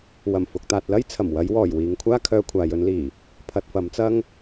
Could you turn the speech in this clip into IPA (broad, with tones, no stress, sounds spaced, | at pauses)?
w ɐ˨˩ m f ʊ˨ k̚ t̪ aː˨ t̚ l ɐ˥ j t͡sʰ ɐ˨˩ m w ɐ˨˧ j w ɔː˨˩ j w iː˨ ŋ kʷʰ aː˥ kʰ œː˧ kʷʰ aː˨ j ɵ˨˧ n l iː˨˩ | pʰ ɐ˨ t̚ f ɐ˨˧ m t͡s ɐ˥ ŋ